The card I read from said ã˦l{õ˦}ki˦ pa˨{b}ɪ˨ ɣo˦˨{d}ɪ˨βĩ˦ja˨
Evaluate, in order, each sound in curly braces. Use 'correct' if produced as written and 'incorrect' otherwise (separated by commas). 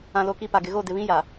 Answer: incorrect, incorrect, correct